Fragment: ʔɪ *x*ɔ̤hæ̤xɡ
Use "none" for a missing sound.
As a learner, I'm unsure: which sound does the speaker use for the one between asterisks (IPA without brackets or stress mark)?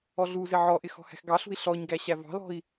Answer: x